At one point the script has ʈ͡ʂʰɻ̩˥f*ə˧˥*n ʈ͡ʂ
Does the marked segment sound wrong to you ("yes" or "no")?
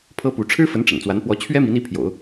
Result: no